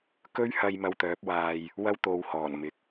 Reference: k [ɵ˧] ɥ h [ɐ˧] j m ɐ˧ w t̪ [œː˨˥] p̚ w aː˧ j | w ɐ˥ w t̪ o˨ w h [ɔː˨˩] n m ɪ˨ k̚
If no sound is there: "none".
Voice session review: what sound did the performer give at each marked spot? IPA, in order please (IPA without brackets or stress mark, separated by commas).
ɵ˥, ɐ˧, œː˨˥, ɔː˨˩